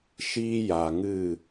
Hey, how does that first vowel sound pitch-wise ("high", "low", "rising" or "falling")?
high